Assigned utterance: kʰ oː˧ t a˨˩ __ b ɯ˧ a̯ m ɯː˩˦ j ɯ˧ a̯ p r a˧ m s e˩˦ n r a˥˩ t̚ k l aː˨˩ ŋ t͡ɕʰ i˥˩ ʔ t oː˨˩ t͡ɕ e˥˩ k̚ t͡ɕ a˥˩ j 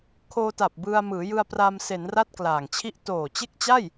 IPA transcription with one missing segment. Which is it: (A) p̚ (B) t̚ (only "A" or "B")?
A